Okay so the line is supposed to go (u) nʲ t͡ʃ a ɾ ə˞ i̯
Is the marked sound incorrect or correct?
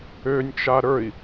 incorrect